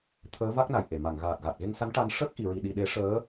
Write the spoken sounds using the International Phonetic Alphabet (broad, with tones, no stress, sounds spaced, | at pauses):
t̪ʰ əː˧˥ v a˦˥ k̚ n a˨˩ j ʔ e˨˩˨ m a˨˩˨ ŋ ɣ aː˨˩ t̚ ɣ a˨˩ t̚ ɣ e˧ ŋ s a˧˥ n ʈ a˧ n ʂ əː˦˥ k̚ ʔ i˨˩˨ ɹ i˨˩ ɗ i˨˩ ɗ e˨˩˦ ʂ əː˧˥